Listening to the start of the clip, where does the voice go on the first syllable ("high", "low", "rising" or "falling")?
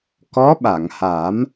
rising